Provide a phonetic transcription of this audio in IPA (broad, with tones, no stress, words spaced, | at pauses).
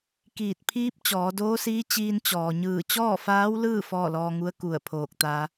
kiː˧˩t̚pʰiː˧˥p̚ t͡ɕɔː˩˧doː˧˥siː˧˥ t͡ɕiː˧n t͡ɕɔː˩ɲɯː˧˩ t͡ɕɔː˥˨faː˧˥wlɯː˥˨ fɔː˥˨lɔː˧ŋu˧˥ə̯ ku˧˩ə̯pʰoː˧˩k̚t̪a˧